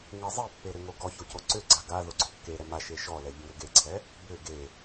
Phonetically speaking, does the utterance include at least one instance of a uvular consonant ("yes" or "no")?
no